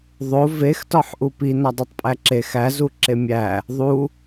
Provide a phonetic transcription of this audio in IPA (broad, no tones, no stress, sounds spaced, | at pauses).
ðˤ o v e x t ɒ ħ ʔ u p i n ɒ dˤ e tˤ pʼ æ ǁ e x æ z u ǁ e mʲ æ | ðˤ u